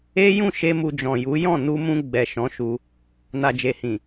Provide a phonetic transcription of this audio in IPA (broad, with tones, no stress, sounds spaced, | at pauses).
e˦ j ũ˦˨ ʃ e˧ m u˧ d͡ʒ ɔ̃˨ j u˨˦ j ɔ̃˦˨ n u˧ m ũ˧ ɡ͡b ɛ˨ ʃ ɔ̃˨˦ ʃ u˧ | n a˨ d͡ʒ e˨ h ĩ˨